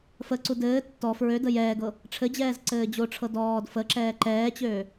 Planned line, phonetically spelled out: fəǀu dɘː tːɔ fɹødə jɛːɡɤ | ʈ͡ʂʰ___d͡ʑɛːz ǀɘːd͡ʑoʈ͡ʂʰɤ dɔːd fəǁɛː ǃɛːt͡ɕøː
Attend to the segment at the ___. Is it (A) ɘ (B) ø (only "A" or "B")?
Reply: A